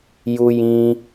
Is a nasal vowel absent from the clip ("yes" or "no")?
no